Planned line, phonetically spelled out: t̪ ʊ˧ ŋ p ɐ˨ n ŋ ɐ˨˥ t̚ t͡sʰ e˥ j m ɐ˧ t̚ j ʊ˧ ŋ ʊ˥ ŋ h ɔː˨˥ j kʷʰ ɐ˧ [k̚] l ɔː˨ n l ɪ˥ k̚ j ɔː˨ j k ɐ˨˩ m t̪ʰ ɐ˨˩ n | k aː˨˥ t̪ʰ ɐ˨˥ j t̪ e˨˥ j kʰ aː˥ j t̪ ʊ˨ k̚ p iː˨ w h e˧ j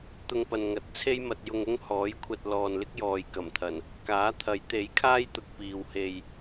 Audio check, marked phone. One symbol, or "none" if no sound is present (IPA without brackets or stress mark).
t̚